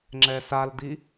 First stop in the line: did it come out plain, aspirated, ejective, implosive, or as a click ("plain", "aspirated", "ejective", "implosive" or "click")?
click